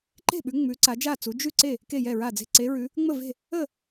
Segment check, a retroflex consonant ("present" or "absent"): absent